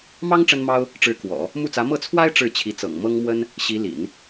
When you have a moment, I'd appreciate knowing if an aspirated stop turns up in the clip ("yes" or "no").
yes